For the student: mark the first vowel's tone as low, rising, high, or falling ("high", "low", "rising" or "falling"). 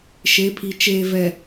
rising